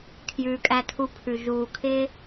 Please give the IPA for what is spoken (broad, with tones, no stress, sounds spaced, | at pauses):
kʰ j ʉː˨ kʼ æ˧ tʰ u˧ pʰ ʉ˨ ʒ uː˨ kʰ ɪː˦